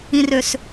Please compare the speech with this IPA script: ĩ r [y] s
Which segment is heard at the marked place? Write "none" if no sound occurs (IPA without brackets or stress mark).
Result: ø